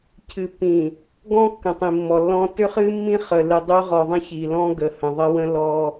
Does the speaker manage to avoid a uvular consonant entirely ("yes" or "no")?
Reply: no